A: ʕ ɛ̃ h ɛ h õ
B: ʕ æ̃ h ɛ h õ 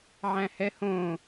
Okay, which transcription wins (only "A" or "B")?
B